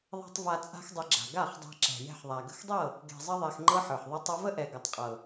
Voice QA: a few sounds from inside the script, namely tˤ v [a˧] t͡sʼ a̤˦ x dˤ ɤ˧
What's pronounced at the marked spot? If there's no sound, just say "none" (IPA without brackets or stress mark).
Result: a˧